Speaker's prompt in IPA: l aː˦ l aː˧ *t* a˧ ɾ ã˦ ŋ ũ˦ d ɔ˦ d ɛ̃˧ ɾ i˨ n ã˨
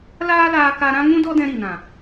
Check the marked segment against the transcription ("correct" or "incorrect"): incorrect